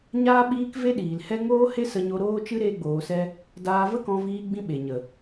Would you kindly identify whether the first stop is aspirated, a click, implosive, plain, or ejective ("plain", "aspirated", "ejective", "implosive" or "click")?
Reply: implosive